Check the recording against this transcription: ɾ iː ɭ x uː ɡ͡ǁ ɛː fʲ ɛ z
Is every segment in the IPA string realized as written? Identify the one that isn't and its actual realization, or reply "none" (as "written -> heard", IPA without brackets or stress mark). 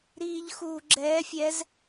ɭ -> ʎ